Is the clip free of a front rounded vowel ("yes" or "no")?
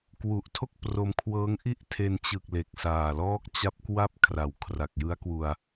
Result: yes